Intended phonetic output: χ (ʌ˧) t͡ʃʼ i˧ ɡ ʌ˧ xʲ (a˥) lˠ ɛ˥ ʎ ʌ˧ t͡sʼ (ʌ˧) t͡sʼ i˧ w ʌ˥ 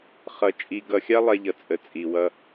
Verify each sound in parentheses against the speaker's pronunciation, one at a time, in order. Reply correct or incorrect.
correct, correct, incorrect: ə˧

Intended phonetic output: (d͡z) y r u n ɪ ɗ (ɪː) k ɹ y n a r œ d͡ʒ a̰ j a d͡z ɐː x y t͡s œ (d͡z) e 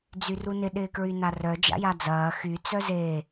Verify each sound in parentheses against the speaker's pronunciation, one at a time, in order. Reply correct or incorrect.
correct, correct, incorrect: z

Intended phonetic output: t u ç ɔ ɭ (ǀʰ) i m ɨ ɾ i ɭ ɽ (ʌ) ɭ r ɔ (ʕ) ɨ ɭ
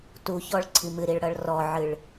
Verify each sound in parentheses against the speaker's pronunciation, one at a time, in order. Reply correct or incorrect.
correct, correct, correct

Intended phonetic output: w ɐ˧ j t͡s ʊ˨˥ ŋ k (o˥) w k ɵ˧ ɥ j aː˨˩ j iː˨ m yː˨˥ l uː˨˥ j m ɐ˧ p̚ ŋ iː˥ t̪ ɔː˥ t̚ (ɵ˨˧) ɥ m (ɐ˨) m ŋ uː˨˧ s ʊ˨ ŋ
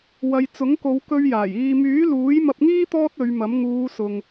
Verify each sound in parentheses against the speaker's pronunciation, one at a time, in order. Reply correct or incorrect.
incorrect: o˨˧, correct, incorrect: ɐ˨˥

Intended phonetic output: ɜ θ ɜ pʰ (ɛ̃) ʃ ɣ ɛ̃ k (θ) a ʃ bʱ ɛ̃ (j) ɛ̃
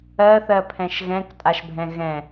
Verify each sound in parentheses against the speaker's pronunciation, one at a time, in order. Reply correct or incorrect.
correct, incorrect: tʼ, incorrect: ɣ

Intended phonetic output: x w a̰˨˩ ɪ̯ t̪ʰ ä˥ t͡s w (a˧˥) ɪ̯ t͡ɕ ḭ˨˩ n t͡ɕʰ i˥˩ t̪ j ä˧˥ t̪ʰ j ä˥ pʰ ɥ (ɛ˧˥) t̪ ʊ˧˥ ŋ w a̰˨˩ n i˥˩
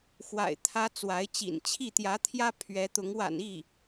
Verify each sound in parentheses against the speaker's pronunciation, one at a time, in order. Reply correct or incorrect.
correct, correct

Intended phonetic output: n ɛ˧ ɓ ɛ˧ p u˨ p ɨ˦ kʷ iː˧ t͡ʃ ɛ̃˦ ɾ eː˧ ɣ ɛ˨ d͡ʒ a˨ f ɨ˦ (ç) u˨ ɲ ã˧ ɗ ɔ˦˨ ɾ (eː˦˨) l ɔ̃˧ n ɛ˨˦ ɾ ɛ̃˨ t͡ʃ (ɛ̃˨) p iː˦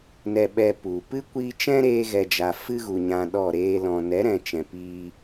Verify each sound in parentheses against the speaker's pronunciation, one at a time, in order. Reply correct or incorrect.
incorrect: ɣ, incorrect: eː˦, correct

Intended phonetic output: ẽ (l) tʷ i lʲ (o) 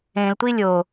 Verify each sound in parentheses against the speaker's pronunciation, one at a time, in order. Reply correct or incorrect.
correct, correct

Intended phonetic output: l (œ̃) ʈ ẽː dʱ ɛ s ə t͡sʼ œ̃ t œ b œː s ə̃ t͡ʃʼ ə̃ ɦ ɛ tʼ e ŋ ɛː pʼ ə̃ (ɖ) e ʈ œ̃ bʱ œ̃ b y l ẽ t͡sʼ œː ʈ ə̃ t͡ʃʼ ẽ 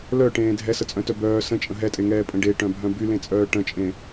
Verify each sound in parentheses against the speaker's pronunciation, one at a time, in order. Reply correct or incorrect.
incorrect: œ, correct

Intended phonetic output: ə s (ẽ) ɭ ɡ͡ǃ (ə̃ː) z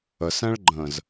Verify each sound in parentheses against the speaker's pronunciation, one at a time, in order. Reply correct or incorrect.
incorrect: ɛ̃, correct

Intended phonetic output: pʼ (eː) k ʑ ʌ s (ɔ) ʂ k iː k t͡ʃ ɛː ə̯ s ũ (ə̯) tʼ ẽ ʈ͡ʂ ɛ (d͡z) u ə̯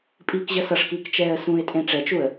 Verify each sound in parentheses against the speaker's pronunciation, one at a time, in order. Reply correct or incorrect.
incorrect: iː, incorrect: ʌ, incorrect: ɪ̯, incorrect: t͡ʃ

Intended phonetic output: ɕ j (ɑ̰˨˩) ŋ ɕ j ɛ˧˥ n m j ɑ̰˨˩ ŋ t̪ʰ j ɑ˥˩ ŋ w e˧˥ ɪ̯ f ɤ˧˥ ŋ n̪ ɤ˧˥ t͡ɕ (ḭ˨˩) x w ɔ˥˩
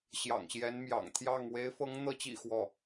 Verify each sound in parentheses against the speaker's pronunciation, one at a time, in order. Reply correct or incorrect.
correct, correct

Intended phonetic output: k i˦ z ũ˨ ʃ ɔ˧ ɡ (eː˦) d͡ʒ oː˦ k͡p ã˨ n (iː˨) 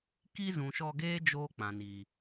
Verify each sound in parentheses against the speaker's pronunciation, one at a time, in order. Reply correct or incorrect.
correct, correct

